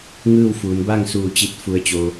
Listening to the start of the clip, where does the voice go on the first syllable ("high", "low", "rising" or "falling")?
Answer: falling